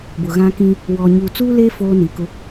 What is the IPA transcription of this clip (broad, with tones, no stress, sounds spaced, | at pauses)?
b ʊ˨ ɣ ã˦ k ĩ˦ | w ɔ˨ ɲ uː˨ t͡s uː˦ l e˦ f oː˦ n i˨ k ʊ˦